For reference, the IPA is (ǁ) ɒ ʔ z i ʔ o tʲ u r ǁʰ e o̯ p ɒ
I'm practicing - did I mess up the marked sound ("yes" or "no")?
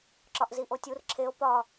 no